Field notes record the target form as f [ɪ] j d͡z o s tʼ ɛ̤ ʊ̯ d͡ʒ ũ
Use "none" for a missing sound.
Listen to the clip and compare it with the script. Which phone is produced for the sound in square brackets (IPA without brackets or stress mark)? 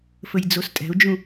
ə